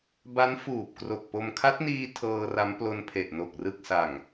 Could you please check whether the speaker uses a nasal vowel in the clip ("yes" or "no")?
no